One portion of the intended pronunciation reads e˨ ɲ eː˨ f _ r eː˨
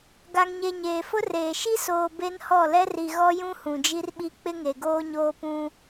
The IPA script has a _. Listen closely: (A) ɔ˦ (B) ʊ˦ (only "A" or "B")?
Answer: B